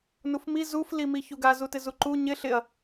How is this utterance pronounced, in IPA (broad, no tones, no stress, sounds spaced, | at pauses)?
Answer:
n u f m i z u f l i m i ç u ɡ a z u t ɪ z u ǃ u ɲ ɪ ɬ ɪ ɐ̯